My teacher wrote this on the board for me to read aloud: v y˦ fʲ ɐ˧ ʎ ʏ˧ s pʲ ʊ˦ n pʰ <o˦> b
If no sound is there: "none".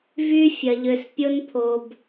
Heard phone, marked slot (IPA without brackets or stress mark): o˦